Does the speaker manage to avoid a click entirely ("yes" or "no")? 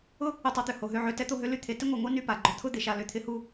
no